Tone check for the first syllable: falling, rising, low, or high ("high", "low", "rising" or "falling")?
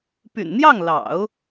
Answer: low